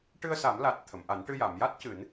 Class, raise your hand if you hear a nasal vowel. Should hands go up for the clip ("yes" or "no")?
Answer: no